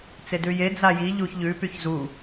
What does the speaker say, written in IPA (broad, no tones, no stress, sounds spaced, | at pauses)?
t͡s e d ʉ j e d͡z a j i ʎ u ç ʎ ʉ p y ç z u